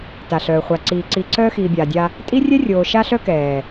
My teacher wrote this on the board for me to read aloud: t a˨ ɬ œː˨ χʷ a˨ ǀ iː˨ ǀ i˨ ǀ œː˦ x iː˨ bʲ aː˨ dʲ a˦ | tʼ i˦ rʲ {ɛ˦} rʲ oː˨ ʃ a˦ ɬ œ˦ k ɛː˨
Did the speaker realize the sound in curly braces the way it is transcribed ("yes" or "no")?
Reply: yes